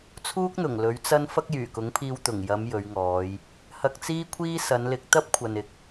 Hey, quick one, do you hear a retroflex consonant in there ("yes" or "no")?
no